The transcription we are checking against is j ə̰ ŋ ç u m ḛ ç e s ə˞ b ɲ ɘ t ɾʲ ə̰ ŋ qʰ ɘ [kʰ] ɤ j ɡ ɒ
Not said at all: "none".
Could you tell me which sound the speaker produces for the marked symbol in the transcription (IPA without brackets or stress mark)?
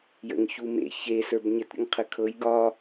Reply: kʰ